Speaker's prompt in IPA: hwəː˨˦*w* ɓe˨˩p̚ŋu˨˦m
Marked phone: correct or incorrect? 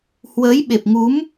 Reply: incorrect